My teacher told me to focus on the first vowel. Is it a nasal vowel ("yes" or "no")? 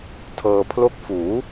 no